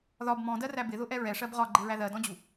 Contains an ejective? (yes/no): no